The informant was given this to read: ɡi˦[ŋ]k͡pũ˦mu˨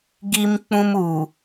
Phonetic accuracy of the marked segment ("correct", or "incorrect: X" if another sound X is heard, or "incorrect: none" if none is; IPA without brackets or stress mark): incorrect: m